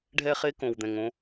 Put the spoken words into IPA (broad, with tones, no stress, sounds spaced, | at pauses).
ɖʱ ɛ˦ χ e˦ k õ˨ w d̪ ɛ̃˨ ŋ õ˦